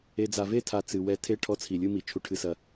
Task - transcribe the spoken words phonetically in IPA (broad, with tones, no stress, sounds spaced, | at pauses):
e˨ d͡z a˨ v e˦˨ tʰ a˨ t͡s ɨ˨ w ɛ˧ tʰ e˦ ʈʰ ɔ˦ t͡sʰ i˨ lʲ ɨ˦ m i˨ t͡ʃʰ u˨ ʈʰ ɨ˨ s ɐ˨